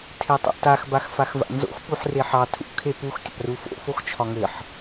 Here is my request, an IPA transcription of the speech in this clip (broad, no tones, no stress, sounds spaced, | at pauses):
tʰ e tˤ o̰ t a x b a x f a x v a̰ n z o̰ x p u ħ r e ħ ɑ tʰ ṵ kʰ e p u x tʲ a̰ r u f o̰ f o x t͡ʃʰ ɒ ŋ ɘ ħ